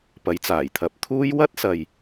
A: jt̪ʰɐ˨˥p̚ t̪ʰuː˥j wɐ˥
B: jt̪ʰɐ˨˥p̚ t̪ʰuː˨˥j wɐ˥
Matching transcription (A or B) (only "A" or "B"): A